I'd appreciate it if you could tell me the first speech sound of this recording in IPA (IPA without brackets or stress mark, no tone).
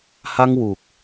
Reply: h